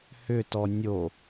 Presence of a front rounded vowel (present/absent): present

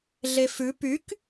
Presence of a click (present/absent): absent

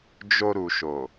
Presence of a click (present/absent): absent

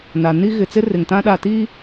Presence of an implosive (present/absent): present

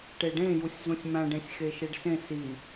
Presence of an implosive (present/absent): absent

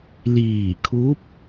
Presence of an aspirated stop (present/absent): present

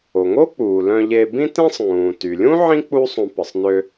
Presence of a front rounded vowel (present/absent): present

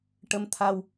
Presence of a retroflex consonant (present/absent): present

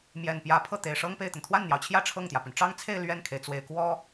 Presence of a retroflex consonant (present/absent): present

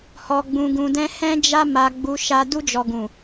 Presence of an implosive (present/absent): absent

